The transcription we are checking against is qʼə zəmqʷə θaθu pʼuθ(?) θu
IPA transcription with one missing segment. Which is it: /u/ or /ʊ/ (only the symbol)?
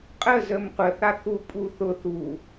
ʊ